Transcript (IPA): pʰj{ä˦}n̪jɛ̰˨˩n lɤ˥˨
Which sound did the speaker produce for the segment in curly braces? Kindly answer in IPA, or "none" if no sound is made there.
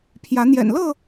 ä˨˦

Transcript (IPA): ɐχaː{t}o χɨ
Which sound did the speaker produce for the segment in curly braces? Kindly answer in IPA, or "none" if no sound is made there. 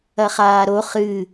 ɾ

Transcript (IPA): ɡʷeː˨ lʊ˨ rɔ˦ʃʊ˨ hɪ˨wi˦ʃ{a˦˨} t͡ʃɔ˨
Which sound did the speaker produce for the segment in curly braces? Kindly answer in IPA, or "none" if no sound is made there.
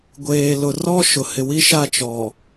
a˦˨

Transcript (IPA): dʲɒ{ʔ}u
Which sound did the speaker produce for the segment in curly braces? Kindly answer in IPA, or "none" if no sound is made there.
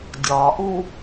ʔ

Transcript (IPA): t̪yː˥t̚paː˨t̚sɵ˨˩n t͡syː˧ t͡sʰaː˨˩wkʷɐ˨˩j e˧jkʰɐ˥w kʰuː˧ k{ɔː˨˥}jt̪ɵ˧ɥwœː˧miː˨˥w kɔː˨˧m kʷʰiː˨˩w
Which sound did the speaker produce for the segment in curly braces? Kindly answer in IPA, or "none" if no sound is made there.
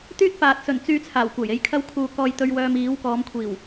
ɔː˧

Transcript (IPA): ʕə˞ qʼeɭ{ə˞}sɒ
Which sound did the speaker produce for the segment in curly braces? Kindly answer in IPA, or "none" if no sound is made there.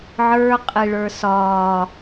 ə˞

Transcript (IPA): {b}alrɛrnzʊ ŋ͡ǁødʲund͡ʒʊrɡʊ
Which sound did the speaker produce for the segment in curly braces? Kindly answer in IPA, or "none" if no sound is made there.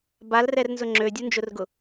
b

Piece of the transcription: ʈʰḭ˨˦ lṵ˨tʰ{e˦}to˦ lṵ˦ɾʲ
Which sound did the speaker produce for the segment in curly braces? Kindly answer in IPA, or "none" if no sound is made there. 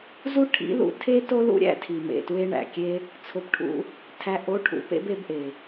e˦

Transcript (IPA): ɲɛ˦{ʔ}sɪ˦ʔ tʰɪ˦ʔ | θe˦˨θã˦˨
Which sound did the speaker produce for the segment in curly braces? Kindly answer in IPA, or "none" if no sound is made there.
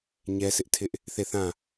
none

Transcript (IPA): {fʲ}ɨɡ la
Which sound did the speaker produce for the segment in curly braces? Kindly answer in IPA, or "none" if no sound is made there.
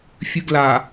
fʲ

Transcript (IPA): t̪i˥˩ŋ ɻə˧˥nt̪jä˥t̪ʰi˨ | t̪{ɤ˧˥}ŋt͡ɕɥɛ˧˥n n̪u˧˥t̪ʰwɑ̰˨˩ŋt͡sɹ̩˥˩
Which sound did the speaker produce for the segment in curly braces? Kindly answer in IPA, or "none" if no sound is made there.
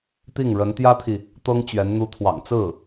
ɤ˥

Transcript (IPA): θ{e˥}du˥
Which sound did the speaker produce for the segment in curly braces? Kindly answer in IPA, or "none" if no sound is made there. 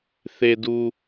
e˥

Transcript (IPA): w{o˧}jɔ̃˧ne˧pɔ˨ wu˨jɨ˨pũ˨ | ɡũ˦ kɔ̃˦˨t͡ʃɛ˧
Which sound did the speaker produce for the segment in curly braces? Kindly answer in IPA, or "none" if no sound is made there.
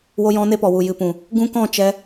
o˧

